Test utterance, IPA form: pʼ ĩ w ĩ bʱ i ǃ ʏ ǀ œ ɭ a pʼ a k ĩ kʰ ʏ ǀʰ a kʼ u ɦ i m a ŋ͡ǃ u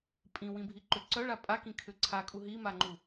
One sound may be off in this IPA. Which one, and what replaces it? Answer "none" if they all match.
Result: none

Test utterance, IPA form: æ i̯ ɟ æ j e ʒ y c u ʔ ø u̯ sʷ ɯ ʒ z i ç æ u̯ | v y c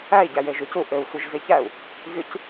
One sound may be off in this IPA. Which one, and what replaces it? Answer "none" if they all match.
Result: none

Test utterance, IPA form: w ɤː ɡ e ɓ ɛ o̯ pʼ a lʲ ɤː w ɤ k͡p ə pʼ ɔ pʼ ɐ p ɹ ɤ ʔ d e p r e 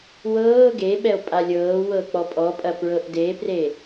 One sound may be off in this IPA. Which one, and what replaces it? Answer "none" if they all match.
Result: ə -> ɔ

